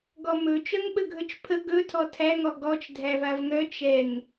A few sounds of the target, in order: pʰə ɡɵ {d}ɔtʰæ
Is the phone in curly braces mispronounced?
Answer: yes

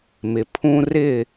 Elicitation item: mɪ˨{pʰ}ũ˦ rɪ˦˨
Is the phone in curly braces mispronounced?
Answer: no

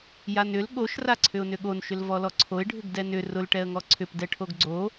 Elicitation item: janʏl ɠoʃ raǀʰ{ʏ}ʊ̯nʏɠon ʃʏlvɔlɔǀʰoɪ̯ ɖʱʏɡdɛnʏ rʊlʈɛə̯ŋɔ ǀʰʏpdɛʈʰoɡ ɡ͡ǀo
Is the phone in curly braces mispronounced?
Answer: no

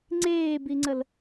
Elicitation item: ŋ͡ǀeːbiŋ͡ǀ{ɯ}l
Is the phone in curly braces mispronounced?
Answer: yes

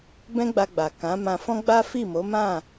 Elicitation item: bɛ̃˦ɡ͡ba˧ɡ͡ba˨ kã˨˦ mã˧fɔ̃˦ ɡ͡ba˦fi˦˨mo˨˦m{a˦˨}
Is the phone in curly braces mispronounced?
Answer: yes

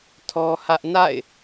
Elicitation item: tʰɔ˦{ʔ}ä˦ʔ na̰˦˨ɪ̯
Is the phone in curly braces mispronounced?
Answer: yes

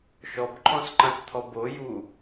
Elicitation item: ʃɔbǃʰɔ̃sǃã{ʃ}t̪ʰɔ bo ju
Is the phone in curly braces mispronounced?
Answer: yes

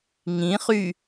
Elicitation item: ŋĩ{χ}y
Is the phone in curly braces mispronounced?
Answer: no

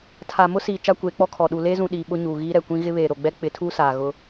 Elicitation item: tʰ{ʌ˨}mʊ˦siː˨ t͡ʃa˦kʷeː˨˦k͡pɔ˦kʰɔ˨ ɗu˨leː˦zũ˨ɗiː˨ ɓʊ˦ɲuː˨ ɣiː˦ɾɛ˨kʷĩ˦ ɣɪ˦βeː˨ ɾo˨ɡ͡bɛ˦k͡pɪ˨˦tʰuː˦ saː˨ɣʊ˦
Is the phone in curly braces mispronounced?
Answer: yes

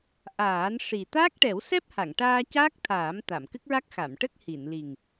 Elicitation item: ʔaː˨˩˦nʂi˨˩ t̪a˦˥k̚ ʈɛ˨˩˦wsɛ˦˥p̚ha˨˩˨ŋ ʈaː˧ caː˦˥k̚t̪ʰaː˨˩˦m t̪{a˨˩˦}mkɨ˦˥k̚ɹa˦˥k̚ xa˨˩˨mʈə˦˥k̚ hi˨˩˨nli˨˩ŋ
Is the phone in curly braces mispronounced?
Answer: yes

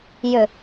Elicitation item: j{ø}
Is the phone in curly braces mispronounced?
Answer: no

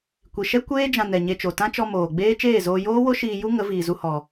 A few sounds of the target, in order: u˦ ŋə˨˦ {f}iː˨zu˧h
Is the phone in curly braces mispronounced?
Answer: yes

